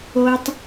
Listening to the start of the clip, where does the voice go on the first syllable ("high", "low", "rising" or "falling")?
high